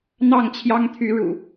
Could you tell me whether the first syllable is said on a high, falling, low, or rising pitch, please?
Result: falling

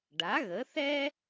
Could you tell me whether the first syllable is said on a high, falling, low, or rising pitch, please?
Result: rising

